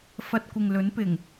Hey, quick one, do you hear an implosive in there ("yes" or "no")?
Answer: no